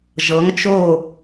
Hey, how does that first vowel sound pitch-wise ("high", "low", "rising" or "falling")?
rising